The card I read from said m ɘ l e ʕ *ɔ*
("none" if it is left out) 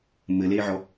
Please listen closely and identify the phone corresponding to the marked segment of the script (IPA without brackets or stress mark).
ɔ